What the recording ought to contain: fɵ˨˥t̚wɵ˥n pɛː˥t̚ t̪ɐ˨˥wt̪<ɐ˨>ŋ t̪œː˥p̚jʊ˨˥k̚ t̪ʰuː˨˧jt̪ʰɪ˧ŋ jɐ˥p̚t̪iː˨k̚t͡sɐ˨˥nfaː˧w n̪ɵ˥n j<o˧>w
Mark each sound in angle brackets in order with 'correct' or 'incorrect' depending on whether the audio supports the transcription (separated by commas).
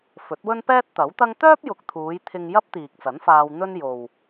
incorrect, incorrect